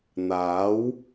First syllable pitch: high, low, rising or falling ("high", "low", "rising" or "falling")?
rising